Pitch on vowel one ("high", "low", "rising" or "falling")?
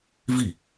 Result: falling